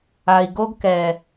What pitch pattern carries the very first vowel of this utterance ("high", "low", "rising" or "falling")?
low